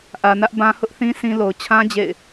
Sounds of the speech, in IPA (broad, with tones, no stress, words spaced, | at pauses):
ʔä˨nä˦ʔbã˦ hʊ˦ʔθĩ˦ sĩ˦ lo˨ʊ̯ t͡ɕʰã˦ d͡ʑḛ˦˨ɪ̯